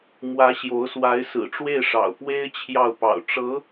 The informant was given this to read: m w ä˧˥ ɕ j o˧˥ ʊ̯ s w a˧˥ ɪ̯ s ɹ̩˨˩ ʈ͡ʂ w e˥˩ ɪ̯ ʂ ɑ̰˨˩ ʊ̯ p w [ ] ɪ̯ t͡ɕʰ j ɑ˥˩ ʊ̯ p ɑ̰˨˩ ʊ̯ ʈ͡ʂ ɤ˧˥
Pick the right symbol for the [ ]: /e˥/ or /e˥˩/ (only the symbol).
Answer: e˥